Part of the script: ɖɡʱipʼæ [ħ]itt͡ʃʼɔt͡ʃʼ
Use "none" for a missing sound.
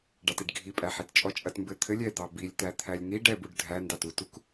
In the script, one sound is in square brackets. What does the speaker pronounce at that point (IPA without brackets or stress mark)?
ħ